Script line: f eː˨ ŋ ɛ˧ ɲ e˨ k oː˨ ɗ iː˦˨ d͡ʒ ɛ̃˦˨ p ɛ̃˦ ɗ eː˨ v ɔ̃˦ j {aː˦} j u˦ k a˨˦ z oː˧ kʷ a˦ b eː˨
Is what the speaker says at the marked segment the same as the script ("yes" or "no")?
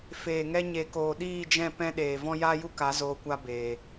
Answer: yes